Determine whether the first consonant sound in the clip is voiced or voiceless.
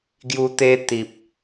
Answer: voiced